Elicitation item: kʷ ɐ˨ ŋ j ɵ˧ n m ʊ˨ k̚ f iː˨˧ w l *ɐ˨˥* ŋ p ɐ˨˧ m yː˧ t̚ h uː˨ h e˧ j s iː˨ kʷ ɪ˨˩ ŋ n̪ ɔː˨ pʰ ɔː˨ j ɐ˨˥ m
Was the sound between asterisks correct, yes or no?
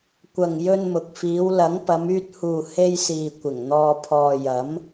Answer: yes